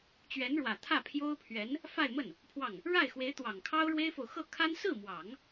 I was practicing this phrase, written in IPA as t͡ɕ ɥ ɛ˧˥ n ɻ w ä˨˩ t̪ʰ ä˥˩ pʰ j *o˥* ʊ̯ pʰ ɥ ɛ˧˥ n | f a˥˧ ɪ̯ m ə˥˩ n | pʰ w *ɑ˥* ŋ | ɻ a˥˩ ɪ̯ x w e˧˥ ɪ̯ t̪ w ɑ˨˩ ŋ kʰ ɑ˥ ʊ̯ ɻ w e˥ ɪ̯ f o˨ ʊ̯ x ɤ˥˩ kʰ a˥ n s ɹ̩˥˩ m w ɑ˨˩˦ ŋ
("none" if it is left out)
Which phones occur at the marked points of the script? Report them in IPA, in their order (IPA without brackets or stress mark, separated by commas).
o˥, ɑ˥˩